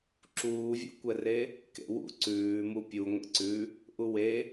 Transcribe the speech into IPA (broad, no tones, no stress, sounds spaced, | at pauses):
ǁ uː vʲ ṵ kʷ ɛ r e | k ḛ w ṵ ǀ ʉː m u pʲ u ŋʷ ḛ ǀ ʉ | ʔ u w e